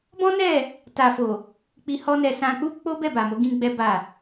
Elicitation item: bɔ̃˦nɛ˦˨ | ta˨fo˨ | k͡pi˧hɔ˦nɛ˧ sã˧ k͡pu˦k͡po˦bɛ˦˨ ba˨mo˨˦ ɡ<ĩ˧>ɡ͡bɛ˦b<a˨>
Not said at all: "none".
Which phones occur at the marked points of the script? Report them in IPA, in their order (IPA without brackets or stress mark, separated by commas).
ĩ˦, a˦˨